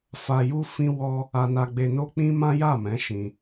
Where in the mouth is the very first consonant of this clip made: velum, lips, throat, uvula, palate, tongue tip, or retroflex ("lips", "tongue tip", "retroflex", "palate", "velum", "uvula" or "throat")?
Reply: lips